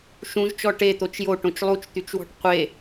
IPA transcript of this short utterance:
ʃ ũ ʒ t͡ʃ ɔ ʈ e t̪ o t͡ʃ j o ʈ õ t͡ʃ lˠ u t͡ʃ t̪ y t͡ʃ w ɔ̤ ʈ qʷ e

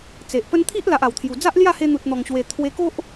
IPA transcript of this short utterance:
t͡s e˨ ʔ p ə˦ n t̪ʰ i˦ ʔ l a˨ ʔ a˨˩ w t̪ʰ j u˨˩ d͡z a˦ ʔ l j a˥˧ h e˧ n̪ u˨ t̚ n̪ ɔ˨˩ ŋ ɕ w e˨˩ t̪ʰ w e˧ k o˦ ʔ

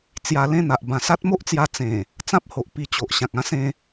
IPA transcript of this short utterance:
t͡s j a˧ l ẽ˥˧ n̪ a˨ ʔ b ã˨˩ s a˦ t̚ m o˦ ʔ t͡s j a˧ t͡s ẽ˨˩ | t͡s ã˦ p̚ h o˨ ʔ p i˧ t͡ɕ o˨ ʔ ɕ ã˨ k̚ ã˦ s ẽ˧

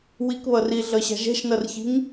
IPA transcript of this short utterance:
w i k β ʌ r i ɮ ʌ ɕ a̤ ʒ ɛ̤ ʃ n ʌ r ç i̤ ŋ

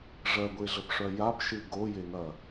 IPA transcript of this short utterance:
ʐ ɜ ɡʷ e ɮ ə p ʂ œ j a p ʃ ɨ ɡ o j e ŋ ɐ

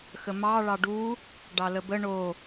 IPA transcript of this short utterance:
x ə m ɑ ɭ ɑ ɖ u | ɖ ɑ l ə b ə ɳ o

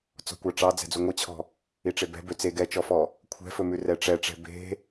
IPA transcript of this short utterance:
t͡s ɔ̤ kʷ ɑ ʈ͡ʂ ɑ d͡z ɛ̤ d͡z u ŋʷ i t͡ɕʰ ɔ̤ | i ʈ͡ʂ e b ɛ̤ b ø t͡s e ɡ ɛ t͡ʃ ɔ f ɔ | kʷʰ ɛ̤ f ɵ m ʉ r ɛ ʈ͡ʂ ɛ ʈ͡ʂ ɛ̤ b e̤

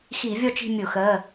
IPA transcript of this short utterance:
x i˧˩˧ vʲ ɔ˦˨ t͡ʃ i̤˦˨ mʲ ʊ˧˩˧ x ɜ˩˧˩

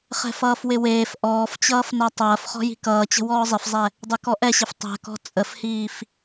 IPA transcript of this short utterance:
χ ɛ̤ f ʌː f w ɪ w eː f ʔ ɔː f t͡ɕ ʌː f n a tˤ ɐː f χ ɔ̤ j i̤ k ʌː t͡ɕ ə̤ w ɔː zˤ ɪ f zˤ ɛ | dˤ e k ɔ ʔ ɛ ɕ ɪ f tˤ ɛ̤ k ɔ̤ t͡sʼ ə f h iː f

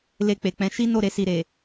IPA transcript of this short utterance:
l e˧ k͡p e˨ k͡p ɛ̃˨˦ ʃ i˦ n o˦˨ ɾ e˧ s i˨ ɾ e˨

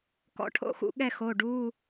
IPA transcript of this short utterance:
k ɔ̰˧˥˧ ʈʰ o̰˦˥ x ṵ˧ ɠ ɛ˥˨ x o˩˧˩ ɖ u˧˥˧

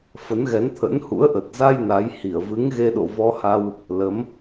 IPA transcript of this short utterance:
f ə˨˦ n ɣ ɛ˨˦ n t̪ʰ ə̰˧˥ n h ṵ˧˥ ə̯ ʔ ə˨˩ t̚ z a˧ j n a˨˦ j h i˧˩ ə̯ v ɨ˨˦ ŋ ɣ e˧ ɗ o̰˧˨ v ɔ˧ h a˧ w | l ə˨˦ m

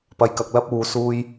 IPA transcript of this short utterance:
p ɐ˧ j k ɐ˨˥ k̚ l ɐ˥ p̚ uː˨˧ s uː˧ j

